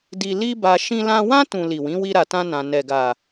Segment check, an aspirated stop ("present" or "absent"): absent